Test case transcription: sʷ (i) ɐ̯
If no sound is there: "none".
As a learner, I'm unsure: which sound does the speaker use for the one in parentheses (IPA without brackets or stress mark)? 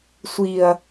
i